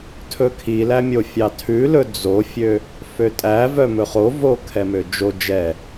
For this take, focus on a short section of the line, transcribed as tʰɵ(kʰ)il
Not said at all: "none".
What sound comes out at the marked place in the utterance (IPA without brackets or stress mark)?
kʰ